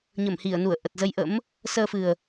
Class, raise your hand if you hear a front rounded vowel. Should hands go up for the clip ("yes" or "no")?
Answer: no